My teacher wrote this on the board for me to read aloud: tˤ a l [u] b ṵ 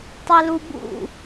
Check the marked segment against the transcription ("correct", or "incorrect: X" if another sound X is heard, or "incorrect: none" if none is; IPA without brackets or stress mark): correct